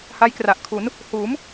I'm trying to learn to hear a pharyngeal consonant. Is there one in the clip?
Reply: no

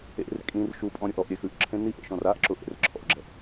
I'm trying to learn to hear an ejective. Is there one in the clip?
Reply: yes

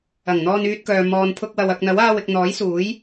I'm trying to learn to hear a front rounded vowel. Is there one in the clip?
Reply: yes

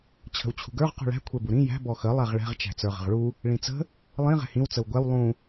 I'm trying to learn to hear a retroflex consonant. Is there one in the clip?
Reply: yes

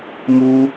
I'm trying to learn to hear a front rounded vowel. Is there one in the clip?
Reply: no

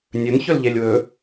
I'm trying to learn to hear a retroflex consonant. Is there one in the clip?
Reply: no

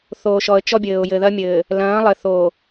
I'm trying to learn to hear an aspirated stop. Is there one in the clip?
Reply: no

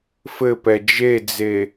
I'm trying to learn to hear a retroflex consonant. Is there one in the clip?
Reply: no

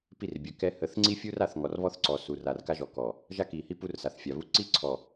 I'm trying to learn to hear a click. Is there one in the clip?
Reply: yes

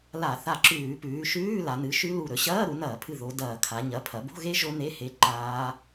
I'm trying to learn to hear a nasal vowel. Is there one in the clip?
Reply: no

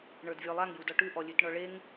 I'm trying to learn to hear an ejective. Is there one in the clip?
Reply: no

